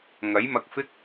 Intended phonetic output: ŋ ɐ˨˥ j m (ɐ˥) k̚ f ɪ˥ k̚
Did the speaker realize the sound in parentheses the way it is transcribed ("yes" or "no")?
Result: no